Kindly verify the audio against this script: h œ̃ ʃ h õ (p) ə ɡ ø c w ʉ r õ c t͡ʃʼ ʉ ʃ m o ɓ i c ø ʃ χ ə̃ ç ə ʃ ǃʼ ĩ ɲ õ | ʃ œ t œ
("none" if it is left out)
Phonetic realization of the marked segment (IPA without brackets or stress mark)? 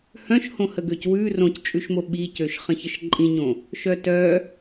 h